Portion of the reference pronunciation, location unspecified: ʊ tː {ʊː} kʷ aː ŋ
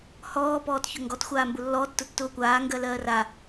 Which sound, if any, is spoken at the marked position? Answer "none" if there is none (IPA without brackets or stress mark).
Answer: ʊː